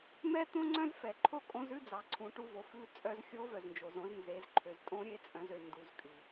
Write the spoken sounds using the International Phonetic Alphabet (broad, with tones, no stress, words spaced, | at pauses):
mɛ˥t̪õ˥ ŋ͡ǀœ̃˥zfɛ˩ ǃʰo˥kʼõ˧˥zʉ˥d͡zɑ˩ ǀʰũ˩˧ʈu˧ vo˩˧fʉ˧˥ t͡sʼœ˧zxʲo˧˥vœ˩znd͡ʒo˩z õ˧znze˩˧zǃʰø˩z tʼõ˧˥ɾʲe˧˥t͡sʼœ̃˩˧z ø˩ ndu˩˧zkʼy˩